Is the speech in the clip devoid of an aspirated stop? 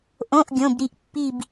yes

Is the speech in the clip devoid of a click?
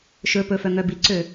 no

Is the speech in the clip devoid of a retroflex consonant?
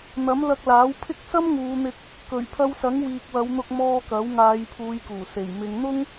yes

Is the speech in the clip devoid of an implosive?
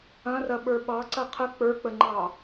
no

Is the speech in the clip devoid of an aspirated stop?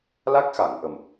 yes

